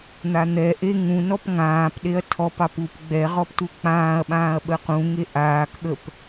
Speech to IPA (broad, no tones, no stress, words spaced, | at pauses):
n̪an̪ɛʔe ŋũnɔp ŋãːp ɗeɐ̯tʰɔpɑp up ɡ͡bɛ ʁɔptuk͡pãːɐ̯ɓãːɐ̯ ɓəqũŋe ʔaːkɠəp